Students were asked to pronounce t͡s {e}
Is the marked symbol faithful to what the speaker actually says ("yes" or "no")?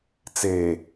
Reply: yes